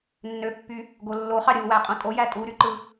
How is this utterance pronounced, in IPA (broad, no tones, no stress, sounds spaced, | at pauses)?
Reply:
nː ø pː y | ɡ o lː o χ ɑ ɾʲ ɯ w æ qʼ õ tʼ o j æ tʼ u ɾ y ǃ ɯ